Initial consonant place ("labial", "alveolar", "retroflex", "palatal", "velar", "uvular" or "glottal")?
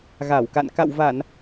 velar